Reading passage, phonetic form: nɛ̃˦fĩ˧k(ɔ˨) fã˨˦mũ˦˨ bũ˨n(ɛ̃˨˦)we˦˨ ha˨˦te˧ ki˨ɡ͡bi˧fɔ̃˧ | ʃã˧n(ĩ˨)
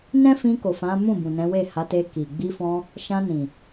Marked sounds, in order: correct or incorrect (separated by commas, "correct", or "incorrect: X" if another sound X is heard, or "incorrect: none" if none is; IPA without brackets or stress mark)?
incorrect: o˨, correct, correct